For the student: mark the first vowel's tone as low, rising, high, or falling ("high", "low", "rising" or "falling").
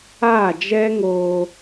falling